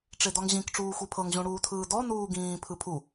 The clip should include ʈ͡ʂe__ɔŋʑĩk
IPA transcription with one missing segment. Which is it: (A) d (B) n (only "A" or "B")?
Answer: A